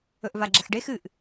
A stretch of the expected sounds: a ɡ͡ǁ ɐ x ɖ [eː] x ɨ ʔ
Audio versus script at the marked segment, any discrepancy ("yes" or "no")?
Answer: yes